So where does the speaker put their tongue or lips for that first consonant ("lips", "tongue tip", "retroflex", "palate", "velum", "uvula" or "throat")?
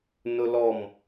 tongue tip